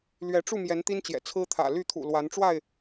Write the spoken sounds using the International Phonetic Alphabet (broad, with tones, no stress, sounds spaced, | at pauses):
l ɥ ɛ˨˦ ʈ͡ʂ u˥˨ m j ɛ˨˦ n t̪ i˦ n t͡ɕ j ɛ̰˨˩ t͡sʰ ɹ̩˦ t̪ʰ ä̰˨˩ l y˥˨ t̪ʰ ṵ˨˩ l w a˨˦ n ʈ͡ʂ w a˥˨ ɪ̯